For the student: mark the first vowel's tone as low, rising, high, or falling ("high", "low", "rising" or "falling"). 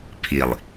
low